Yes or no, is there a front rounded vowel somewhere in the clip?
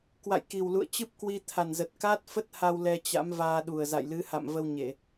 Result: no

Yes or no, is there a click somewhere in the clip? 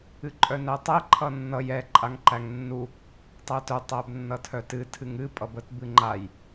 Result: yes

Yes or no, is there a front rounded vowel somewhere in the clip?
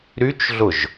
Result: yes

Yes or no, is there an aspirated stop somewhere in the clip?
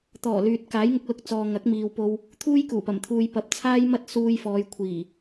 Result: yes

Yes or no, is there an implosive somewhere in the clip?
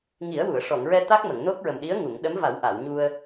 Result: yes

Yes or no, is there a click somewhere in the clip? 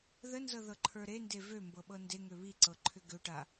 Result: yes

